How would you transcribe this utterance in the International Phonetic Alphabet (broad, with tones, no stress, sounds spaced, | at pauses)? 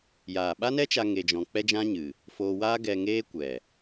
j aː˨ ɓ a˦ n ɛ˦ t͡ʃ a˧ ŋ e˧ d͡ʒ ɔ̃˧ k͡p ɛ˦ d͡ʒ ã˦ ɲ ɨ˨ | f oː˧ w aː˦ ɡ ɛ˧ ŋ eː˦ kʷ ɛ˨